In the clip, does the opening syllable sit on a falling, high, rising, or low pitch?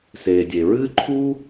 low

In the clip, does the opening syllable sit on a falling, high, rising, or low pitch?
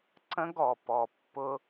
high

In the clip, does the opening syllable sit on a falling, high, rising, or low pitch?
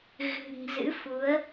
low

